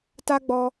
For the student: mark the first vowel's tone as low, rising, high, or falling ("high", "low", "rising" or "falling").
high